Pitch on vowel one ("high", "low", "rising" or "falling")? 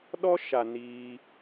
high